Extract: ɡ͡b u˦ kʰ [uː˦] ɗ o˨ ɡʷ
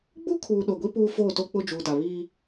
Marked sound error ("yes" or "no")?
yes